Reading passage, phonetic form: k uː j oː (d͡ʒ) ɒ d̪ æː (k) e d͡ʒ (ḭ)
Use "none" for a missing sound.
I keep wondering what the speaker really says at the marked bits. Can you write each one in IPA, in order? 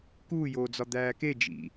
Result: d͡z, k, ḭ

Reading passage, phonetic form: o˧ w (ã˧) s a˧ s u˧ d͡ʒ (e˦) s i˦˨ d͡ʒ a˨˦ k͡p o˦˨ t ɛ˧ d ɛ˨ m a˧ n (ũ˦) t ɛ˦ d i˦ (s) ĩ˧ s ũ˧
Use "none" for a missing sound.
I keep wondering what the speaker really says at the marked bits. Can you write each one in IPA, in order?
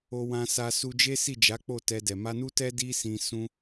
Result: ã˧, e˦, u˦, s

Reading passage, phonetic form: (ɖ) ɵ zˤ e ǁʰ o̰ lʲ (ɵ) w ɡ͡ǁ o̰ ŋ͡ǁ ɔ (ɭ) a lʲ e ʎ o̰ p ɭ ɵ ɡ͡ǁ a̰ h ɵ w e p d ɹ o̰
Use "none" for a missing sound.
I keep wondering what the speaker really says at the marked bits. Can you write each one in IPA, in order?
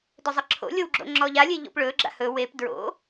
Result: d, o, ʎ

